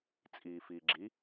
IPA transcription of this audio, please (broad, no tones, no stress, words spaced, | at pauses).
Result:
t͡sʼiːfiːɡ͡ǁi